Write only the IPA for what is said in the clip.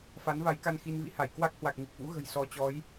f a˨˦ n v a˨˦ j k a˧ n x i˧ n v ḭ˧˥ h a˧˩ j k w a˦˥ k̚ h w a˨˩ k̚ ŋ i˨˩ k̚ v ṵ˧˥ ɣ ə̤˨˩ j s ɔ˨˦ t͡ɕ ɔ˨˦ j

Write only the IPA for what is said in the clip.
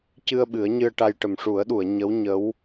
c ɨ˧ ə̯ ɓ ɨ˨˩˦ ə̯ ɲ ɨ˧ ə̯ ʈ a˧ j ʈ ə˨˩ m ʂ u˨˩˦ ə̯ ɗ u˨˩˨ ə̯ ɲ ə˧˥ w ɲ ə˧˥ w

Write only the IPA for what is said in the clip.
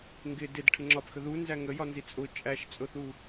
ŋ ɡ ɪ d ɪ d ʈʰ ɪ ŋ͡ǁ ɒ p x ə ð u n z æ ŋ ə j ɒ n z i t͡sʼ ʊ t͡ʃʼ æ ʃ t͡sʼ ʊ θ u

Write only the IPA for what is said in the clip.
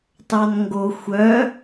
t ɑ n ŋ ɡ o xʷ œ

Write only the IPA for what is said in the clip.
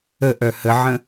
ə ʔ œ h ə ʕ ə̃

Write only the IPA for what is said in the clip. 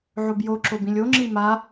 ʕ o b j o ǁ o b ĩ lʲ o ŋ͡ǁ i m a

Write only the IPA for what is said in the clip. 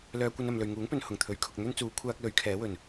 l œː˧ kʷ ɐ˧ n ɐ˨ m l ɵ˨ ɥ ŋ uː˨˥ ŋ p ɵ˨ n h ʊ˨˩ ŋ t̪ʰ ɵ˨˥ ɥ kʰ ʊ˨ k̚ n̪ ɵ˥ n t͡s uː˨˧ kʷʰ aː˥ k̚ l ɵ˨˥ ɥ kʰ ɛː˨˥ w ɵ˨˩ n

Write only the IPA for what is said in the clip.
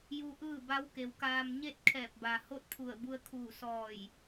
j u˧ ʔ ɯː˥˨ b a˧˥ w k e˩ w k aː˧ m ɲ e˥˨ t̚ kʰ ɛː˧˩ p̚ b a˩ h o˥˨ t̚ pʰ u˧˩ ə̯ b u˧ ə̯ kʰ uː˧˩ s ɔː˧˩ j

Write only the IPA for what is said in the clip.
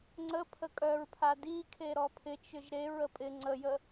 ŋ͡ǀ ə pʰ ə kʼ œ ɹ pʰ a d i kʰ e ɾ ɔ pʰ ɪ t͡ʃ ʏ ʒ ɾ e ɹ ə pʼ ɪ ŋ͡ǀ ə j ə

